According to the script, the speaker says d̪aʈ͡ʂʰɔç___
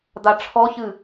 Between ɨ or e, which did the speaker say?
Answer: ɨ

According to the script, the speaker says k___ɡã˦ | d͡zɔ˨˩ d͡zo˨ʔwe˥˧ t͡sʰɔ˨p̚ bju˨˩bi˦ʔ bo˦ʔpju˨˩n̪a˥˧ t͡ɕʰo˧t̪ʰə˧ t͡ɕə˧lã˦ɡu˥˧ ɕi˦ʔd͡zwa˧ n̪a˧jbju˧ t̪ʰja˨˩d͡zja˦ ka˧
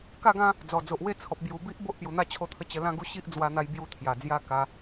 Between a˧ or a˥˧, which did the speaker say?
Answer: a˥˧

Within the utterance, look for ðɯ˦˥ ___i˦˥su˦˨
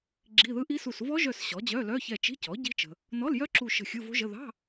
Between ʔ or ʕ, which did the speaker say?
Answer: ʔ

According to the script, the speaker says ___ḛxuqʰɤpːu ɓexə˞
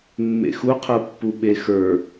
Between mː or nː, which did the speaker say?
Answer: mː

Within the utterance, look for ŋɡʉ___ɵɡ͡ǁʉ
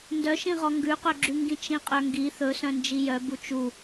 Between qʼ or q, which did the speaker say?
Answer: q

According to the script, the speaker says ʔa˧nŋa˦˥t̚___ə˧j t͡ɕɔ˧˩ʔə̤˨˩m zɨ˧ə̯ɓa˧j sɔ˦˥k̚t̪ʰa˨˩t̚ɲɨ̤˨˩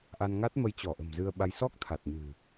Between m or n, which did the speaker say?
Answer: m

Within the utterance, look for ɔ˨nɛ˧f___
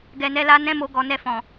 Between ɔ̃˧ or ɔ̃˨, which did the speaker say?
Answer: ɔ̃˨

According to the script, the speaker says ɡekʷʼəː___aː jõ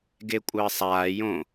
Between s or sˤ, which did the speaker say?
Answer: sˤ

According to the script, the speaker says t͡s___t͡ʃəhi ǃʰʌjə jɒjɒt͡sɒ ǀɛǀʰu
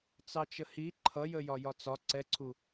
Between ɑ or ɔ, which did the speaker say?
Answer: ɑ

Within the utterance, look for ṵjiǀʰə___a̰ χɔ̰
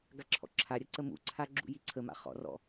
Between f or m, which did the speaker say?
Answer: m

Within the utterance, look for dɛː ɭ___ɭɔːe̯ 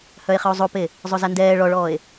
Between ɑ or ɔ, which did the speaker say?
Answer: ɔ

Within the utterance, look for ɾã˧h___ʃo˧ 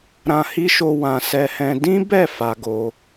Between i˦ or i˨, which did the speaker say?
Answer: i˦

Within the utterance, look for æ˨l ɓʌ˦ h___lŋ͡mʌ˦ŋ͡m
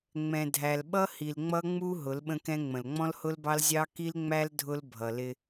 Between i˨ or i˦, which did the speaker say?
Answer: i˨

